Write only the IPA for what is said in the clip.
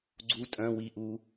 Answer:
ɡ͡ǀu tʼœ̃ wi ʔu

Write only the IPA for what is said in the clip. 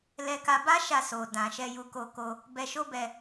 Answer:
lɛ˧ka˧ba˦ʃa˧ so˨ dã˨ʃɛ˧ ju˧ko˧ko˧ | bɛ˧ʃo˦ bɛ˧

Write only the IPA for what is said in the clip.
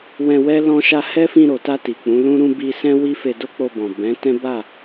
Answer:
wɛ̃˧wɛ˦ lɔ̃˦ʃa˦ hɛ˦fĩ˧ɾo˨ta˧ ti˨k͡pũ˨˦lũ˦ɾũ˦ bi˧sɛ̃˦ wi˦fe˧ do˦k͡po˧bɔ̃˨ bɛ̃˨˦tɛ̃˦ ba˦˨

